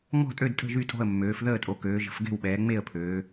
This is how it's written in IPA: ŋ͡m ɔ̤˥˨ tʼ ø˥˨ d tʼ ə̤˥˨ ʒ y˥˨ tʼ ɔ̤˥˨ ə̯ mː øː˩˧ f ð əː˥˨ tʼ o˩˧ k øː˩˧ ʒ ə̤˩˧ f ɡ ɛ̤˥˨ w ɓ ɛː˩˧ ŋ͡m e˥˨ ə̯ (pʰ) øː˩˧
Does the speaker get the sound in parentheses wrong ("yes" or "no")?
no